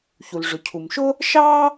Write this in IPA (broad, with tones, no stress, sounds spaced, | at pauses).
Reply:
ç u˩ l ʐ ʊ˩ cʰ u˩ m ʃ ʊ˥ | ʃ ɑ˥